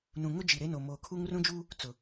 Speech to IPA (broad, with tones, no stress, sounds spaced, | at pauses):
n ũ˨ ŋ ʊ˦ d͡ʒ i˨ ɾ e˦ n o˨ m oː˨ kʰ u˦ ŋ r ũ˦ d͡ʒ uː˦ | t͡s ʊ˨